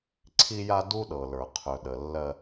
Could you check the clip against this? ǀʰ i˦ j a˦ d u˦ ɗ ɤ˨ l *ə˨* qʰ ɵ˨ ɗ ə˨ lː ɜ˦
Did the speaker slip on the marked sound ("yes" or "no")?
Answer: yes